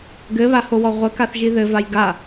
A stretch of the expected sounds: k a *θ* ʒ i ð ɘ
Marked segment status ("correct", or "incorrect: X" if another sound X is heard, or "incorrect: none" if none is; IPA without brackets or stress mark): correct